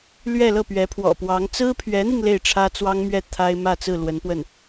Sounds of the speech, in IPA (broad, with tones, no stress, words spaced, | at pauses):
lɥɛ˥˧lɤ˥˩pɥɛ˧˥ pʰwɔ̰˨˩pwɑ˧˥ŋ t͡sɹ̩˥pʰɥɛ˧˥n̪i˧ŋ le˥˩ɪ̯ʈ͡ʂʰä˥t͡swɑ˥ŋmɥɛ˥˩ t̪ʰa˥ɪ̯ mä˥˧t͡sɹ̩˥˩ lwə˧˥npwə˥˩n